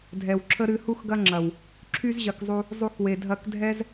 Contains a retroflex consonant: no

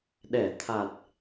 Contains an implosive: yes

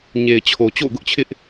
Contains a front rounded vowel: no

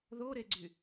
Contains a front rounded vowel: yes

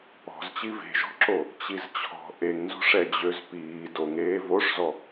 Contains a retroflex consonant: yes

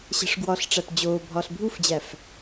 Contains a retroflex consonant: yes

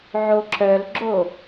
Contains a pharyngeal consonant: yes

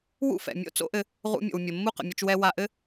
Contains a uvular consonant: yes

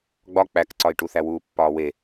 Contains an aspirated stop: no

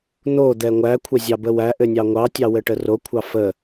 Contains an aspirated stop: yes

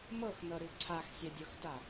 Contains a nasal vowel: no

